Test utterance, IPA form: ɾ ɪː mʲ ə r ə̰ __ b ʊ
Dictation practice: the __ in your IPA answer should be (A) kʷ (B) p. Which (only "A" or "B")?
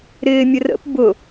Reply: B